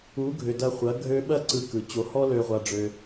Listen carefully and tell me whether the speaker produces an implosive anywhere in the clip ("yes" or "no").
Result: yes